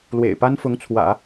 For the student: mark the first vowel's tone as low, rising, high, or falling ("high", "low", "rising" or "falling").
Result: low